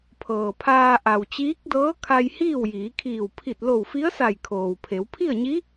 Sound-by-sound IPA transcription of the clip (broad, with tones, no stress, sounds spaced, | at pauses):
pʰ ɤː˩ pʰ aː˧ ʔ a˩ w t͡ɕ iː˧˥ k̚ d ɤː˧˥ kʰ a˧ j h iː˥˨ w j iː˩˧ kʰ iː˧˩ w pʰ i˧˩ t̚ l o˧˩ w f i˧˥ ə̯ s a˧˩ j kʰ oː˩ w pʰ e˩˧ w pʰ i˥˨ ə̯ ɲ i˧˥